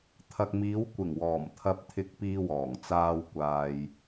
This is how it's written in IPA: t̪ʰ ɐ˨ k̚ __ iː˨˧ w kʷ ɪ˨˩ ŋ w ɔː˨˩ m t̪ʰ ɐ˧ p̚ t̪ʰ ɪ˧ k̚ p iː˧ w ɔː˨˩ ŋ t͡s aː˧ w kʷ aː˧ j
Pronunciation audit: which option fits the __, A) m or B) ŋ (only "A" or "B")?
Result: A